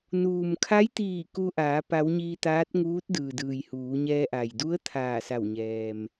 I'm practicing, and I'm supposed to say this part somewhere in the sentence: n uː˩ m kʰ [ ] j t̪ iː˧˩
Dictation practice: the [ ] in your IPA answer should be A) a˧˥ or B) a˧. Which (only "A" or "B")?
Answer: A